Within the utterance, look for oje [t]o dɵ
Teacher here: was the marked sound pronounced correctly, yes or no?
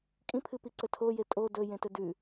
no